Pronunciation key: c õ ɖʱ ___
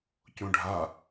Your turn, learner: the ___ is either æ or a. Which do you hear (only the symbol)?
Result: a